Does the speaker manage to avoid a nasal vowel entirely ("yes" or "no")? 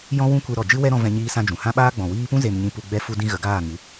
no